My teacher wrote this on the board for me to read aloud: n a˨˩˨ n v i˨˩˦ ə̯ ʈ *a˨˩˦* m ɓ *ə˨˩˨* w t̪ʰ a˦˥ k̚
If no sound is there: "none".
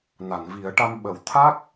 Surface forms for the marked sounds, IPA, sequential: a˧, ə˨˩˨

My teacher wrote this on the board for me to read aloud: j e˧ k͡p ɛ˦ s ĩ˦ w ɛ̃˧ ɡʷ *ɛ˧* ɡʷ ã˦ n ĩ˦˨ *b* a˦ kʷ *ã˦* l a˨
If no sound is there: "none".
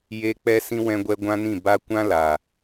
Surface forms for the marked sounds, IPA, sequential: ɛ˧, b, ã˦

